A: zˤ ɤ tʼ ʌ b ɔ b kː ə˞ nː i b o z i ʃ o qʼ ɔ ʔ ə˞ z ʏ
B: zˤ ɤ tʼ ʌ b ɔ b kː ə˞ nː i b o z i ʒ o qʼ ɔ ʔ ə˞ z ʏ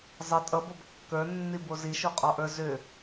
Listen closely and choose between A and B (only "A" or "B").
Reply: A